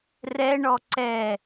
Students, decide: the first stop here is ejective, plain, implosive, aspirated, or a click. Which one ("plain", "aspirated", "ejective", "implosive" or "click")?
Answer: click